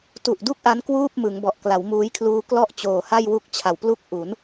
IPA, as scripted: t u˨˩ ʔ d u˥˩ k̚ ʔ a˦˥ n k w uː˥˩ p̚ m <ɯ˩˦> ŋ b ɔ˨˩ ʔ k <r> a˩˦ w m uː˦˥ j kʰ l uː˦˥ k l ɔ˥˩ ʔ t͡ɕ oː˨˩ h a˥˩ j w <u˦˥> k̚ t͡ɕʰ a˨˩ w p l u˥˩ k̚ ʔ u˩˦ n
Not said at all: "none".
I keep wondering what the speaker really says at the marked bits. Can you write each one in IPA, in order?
ɯ˩˦, l, u˥˩

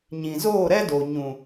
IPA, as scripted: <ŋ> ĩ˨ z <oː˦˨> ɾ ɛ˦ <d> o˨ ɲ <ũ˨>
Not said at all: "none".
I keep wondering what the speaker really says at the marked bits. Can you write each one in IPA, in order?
ɲ, oː˦˨, d, ũ˨

